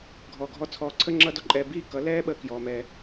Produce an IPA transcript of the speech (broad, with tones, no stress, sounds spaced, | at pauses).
ɡʱ ɔː˨ ɡʱ ɔ˧ t͡sʰ ɔː˧ ǀʰ ə˦ ŋ͡ǁ ʌː˦ d ɔ˧ ǃʼ ɛː˧ b iː˦ k ʌ˨˦ l ɛː˦ ɓ əː˦ k j ɔː˧ m ɛː˧